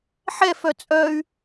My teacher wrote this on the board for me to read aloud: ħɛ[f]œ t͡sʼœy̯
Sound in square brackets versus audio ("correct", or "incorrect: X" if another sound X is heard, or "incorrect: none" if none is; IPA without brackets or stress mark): correct